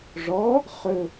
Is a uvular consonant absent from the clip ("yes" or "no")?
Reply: no